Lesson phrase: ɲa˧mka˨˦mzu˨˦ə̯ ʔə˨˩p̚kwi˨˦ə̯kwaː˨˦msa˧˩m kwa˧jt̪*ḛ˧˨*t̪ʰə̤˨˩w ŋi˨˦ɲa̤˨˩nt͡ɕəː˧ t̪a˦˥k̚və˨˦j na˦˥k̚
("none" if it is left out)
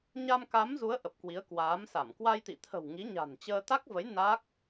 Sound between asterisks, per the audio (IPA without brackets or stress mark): ḭ˧˨